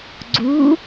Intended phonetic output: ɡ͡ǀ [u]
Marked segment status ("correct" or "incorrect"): correct